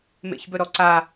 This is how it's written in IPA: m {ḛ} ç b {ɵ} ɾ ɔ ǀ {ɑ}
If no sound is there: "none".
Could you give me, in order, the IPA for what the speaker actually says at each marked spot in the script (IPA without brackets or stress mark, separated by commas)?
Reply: ḛ, ɵ, a